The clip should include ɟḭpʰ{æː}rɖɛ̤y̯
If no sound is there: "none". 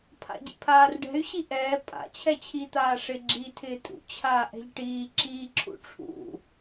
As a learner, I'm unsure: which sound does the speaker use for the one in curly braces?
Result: aː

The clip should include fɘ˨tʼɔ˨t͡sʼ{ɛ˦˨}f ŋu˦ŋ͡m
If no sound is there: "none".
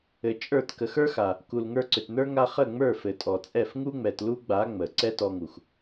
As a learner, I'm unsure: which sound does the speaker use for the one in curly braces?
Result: ɛ˦˨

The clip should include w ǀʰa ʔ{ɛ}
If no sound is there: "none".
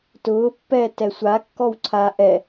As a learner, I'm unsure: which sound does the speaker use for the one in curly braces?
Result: ɛ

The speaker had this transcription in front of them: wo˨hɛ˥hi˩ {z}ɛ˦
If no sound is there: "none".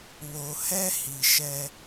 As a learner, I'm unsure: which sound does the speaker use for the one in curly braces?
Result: ʃ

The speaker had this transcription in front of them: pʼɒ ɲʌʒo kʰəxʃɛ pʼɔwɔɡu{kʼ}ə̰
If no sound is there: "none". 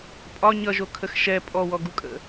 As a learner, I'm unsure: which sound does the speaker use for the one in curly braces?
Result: kʼ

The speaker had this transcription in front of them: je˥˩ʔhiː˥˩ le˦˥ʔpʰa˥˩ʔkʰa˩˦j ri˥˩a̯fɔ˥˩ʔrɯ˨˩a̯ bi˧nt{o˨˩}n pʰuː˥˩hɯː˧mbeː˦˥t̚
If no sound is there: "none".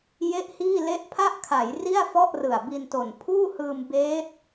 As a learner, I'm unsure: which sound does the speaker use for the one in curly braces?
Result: o˨˩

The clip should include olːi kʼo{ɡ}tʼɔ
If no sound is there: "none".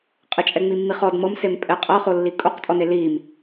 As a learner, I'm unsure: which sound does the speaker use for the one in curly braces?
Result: q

